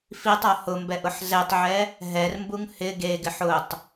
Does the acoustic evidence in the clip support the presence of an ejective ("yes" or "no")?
no